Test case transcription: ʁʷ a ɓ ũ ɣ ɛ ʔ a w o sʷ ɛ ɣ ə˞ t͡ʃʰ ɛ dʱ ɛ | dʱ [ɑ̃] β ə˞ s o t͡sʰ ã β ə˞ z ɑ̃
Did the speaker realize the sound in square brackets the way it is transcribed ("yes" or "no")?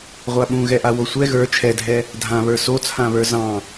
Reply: no